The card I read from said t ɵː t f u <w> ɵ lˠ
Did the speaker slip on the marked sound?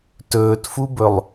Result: yes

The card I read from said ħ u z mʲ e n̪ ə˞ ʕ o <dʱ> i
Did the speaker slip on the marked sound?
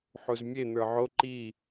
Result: yes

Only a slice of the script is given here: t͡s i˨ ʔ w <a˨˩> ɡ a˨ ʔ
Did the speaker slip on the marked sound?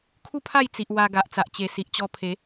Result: yes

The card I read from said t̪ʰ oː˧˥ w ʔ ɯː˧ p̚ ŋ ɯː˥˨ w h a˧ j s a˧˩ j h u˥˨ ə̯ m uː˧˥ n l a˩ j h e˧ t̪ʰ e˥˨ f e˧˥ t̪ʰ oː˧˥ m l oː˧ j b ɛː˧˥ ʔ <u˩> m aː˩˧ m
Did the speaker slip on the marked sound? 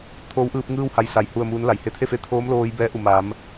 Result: no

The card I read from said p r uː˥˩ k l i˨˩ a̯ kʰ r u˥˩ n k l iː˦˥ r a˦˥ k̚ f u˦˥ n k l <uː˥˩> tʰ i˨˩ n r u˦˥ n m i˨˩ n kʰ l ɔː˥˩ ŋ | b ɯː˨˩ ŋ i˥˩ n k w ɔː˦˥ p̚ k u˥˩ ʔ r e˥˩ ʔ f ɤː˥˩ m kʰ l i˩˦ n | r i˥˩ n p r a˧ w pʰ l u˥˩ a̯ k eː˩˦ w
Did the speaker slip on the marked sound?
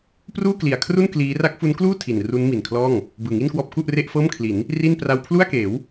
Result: no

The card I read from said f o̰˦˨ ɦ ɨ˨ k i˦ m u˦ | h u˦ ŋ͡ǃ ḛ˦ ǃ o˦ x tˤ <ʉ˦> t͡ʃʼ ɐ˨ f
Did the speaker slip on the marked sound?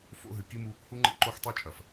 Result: no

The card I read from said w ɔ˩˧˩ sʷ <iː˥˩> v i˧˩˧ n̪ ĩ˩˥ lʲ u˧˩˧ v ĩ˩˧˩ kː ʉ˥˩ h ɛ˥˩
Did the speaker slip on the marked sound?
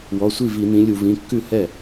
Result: yes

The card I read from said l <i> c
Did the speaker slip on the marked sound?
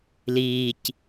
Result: yes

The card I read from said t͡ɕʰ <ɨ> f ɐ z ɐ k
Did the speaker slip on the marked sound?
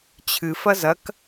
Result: no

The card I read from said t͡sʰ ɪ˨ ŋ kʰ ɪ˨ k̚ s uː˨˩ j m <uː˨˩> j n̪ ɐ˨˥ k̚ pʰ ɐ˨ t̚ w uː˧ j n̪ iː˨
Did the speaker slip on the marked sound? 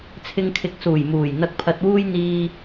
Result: no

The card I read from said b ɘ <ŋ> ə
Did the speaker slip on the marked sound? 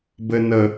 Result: yes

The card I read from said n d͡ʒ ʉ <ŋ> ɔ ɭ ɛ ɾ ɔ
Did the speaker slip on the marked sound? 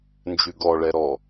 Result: yes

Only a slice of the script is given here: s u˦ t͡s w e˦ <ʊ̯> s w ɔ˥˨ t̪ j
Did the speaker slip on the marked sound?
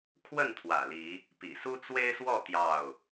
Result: yes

